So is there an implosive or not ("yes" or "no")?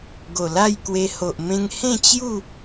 no